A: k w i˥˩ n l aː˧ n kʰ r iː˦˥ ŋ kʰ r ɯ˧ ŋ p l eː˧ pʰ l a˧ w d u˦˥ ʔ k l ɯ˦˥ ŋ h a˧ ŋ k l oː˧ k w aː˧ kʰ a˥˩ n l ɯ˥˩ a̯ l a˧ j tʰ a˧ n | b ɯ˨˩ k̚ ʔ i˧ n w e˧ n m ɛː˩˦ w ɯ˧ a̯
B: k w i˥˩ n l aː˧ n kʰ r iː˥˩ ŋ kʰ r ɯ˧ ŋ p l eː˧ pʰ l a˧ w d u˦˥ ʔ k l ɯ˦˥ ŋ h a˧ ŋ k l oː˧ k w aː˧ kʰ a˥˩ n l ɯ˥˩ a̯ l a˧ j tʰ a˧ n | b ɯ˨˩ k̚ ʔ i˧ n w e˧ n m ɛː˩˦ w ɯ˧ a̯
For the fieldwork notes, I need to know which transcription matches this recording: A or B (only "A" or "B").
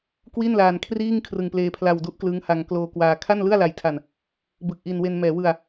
B